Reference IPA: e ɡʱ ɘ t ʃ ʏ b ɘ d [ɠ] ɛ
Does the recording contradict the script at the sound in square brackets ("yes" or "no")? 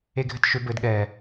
no